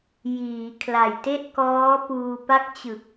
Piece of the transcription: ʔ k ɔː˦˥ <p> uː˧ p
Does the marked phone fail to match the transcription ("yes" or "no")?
no